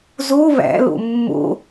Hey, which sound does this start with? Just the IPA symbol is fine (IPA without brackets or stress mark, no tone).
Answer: z